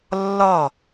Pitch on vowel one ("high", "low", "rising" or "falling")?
falling